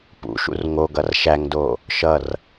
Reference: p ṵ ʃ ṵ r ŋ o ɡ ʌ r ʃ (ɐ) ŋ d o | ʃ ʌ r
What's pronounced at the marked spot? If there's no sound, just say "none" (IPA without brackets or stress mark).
æ